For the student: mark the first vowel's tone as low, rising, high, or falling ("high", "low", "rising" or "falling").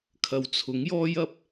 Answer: low